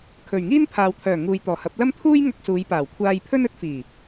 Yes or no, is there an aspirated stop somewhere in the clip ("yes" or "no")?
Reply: yes